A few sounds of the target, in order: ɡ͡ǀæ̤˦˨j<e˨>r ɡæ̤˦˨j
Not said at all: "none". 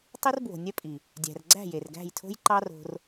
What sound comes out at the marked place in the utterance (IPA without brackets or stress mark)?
e˨